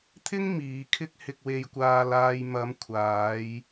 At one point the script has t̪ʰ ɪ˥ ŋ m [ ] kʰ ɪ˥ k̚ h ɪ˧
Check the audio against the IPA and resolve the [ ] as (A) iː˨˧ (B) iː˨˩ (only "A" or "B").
A